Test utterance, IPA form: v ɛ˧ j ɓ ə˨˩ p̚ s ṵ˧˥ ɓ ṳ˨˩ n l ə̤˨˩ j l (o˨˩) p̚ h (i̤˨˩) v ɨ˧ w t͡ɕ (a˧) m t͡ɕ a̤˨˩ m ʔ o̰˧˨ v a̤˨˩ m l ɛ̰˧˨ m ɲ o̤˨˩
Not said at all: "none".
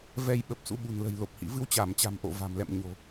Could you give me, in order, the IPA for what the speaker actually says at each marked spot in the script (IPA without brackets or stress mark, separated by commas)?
o˨˩, ḭ˧˨, a˧˩